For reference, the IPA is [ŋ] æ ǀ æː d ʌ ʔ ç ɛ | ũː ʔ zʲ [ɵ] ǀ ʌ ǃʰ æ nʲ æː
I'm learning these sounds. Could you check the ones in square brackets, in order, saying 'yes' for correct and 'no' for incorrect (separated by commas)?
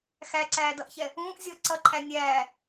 no, no